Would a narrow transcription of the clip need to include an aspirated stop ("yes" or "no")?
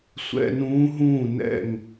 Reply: no